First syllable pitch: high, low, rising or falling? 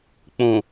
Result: low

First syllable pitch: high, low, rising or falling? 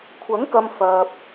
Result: rising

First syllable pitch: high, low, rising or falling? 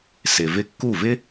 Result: low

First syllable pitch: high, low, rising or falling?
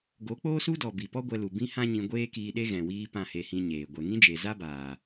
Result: rising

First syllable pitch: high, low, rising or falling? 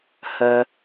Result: low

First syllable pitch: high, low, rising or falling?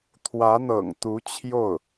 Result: rising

